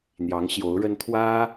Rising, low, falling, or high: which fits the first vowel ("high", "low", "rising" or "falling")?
rising